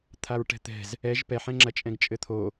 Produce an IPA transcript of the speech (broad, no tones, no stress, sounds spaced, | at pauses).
t̪ʰ a ɹ ʈ ɛ̤ t̪ ɛ̤ z | ɛ ʒ p ɛ ħ ɛ̃ ŋ͡ǁ ɐ t͡ʃʼ ɛ̃ ɡ t͡ʃʼ ɘ t̪ʰ o